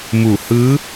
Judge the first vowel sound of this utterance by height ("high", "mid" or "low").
high